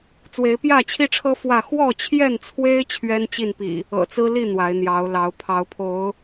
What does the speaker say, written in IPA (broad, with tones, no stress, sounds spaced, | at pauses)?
t͡s w e˨˦ ɪ̯ p j ä˥˨ t͡ɕʰ i˦ ʈ͡ʂʰ ɤ˦ f w ä˥˨ x w ɔ˥˨ t͡ɕʰ j ɛ˥˨ n t͡sʰ w e˦ ɪ̯ t͡ɕʰ ɥ ɛ˦ n t͡ɕ i˥˨ n p ḭ˨˩ | ɤ̰˨˩ t͡s ɹ̩˦ l i˥˨ n̪ w a˨˦ ɪ̯ n̪ j ɑ˨˦ ʊ̯ l ɑ˨˦ ʊ̯ pʰ ɑ˨˦ ʊ̯ pʰ o˨˦ ʊ̯